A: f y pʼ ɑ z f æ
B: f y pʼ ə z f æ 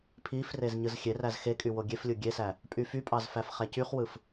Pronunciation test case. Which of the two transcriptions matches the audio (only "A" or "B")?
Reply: A